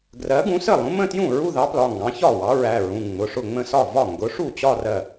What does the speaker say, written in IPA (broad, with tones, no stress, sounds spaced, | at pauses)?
ɡ r ɜ˨˥ ɡ ũ˨˥ s ə˥˩ lˠ ũ˨˥ m ə̃˥˧ t j ũ˥˩ ɹ u˥˧ ð ɑ˨˥ p l ɒ˩˧˩ ŋ ɡ ɑ̃˨˥ ç ɒ˥˩ w ɑ˨˥ ɹ æ˩˧˩ ɹ ũ˩˧˩ ŋ͡m ʊ˩˧˩ ʂ ʊ˥˩ ŋ͡m ə̃˥˧ s ɒ˥˩ v ɒ˥˩ ŋ ɡ ʊ˨˥ ʂ u˥˩ t͡ɕ ɒ˥˧ r ɜ˥˩